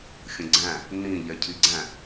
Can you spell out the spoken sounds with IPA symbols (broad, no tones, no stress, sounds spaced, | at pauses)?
xʲ ə̃ ɡ͡ǀ æ̃ | n ĩ ʎ ɛ cʰ i ɡ͡ǀ æ̃